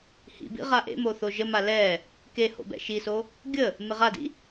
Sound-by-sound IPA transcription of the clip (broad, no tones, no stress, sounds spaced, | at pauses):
h ḭ b ḭ ʁ a ʔ ḛ m o θ o ʒ ə m a l ɛ | k e h o̰ b ɛ̰ ʃ i s o | ɡʲ ə | m ɪ ʁ a d ḭ